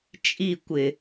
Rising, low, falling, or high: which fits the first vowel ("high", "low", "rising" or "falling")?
falling